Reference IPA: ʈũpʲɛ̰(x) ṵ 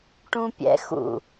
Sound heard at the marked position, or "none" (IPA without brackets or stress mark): x